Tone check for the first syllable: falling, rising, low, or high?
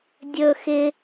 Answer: high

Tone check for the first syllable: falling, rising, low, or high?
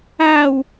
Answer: falling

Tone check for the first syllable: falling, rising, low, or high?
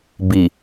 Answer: low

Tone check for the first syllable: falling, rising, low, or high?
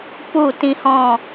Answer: falling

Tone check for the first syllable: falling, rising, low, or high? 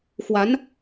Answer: rising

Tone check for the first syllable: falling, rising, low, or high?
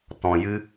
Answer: low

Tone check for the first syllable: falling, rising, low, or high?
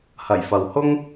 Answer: low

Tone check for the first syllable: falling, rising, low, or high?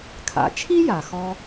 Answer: low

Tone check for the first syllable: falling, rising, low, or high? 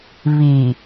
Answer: low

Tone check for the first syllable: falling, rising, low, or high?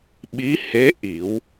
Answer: rising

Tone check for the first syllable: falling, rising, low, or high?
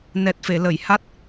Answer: low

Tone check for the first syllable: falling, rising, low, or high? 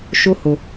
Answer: high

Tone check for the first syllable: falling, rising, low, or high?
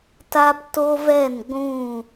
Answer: high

